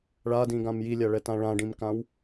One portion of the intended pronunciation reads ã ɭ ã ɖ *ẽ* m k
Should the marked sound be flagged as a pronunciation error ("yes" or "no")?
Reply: yes